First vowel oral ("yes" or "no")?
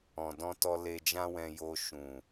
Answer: no